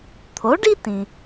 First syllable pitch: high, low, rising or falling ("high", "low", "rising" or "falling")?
rising